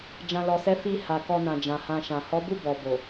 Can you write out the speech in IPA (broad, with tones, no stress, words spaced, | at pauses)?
d͡ʒã˨lɔ˨sɛ˨˦ fi˧ ha˨ kɔ˧nã˨ d͡ʒã˨hã˧ʃã˨ hɔ˨˦bu˦˨ bɔ˨ bo˨